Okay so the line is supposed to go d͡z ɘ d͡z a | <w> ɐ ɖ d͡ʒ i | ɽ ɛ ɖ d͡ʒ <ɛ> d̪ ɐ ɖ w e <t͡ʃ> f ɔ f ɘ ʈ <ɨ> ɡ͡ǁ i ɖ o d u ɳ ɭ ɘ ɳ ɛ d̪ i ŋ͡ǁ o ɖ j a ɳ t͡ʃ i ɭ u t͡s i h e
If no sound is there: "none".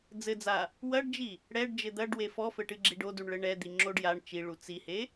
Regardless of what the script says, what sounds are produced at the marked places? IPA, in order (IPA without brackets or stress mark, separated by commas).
w, ɘ, none, ɨ